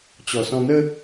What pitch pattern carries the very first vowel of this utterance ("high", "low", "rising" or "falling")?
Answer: low